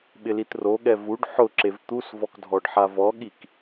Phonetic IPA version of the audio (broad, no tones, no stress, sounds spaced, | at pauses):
ɓ ɪ l i t r o ɠ ɛ v u ɖ ħ ʊ ǁ e v t̪ u s v ɔ k dʱ ɔ ɖ ħ a v ɔ ɠ i k